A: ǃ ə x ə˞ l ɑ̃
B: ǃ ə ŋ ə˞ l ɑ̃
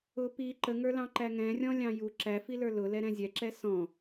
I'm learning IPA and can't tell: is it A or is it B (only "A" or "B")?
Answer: B